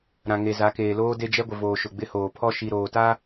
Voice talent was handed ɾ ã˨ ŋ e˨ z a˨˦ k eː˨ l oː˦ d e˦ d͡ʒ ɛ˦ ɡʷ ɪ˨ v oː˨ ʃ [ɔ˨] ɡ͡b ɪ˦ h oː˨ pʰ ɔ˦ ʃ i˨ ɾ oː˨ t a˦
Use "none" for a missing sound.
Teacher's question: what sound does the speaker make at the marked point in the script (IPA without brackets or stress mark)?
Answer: ʊ˨